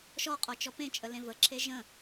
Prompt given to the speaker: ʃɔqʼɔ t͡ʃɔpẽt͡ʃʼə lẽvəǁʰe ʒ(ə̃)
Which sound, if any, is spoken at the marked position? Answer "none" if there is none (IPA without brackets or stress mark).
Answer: ə̃